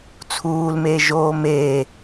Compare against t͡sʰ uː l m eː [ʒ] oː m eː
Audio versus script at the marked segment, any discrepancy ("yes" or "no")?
no